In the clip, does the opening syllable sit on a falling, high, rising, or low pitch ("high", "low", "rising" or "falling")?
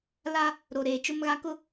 high